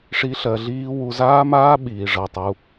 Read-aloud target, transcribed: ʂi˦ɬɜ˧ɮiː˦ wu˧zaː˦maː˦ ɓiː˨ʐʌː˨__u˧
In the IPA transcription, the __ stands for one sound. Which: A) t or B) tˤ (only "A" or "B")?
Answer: B